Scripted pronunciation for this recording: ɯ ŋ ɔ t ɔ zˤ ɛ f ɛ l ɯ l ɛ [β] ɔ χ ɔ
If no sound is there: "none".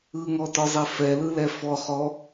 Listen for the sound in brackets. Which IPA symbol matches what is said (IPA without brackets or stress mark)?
f